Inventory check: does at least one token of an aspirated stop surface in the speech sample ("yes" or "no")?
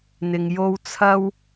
yes